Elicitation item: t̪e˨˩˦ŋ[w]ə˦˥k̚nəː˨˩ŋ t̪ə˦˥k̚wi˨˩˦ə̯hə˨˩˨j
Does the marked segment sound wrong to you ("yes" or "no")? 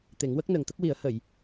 no